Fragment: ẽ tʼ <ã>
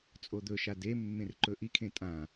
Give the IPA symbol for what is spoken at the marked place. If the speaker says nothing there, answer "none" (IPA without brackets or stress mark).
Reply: ã